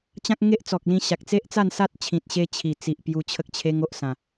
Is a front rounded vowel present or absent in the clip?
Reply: absent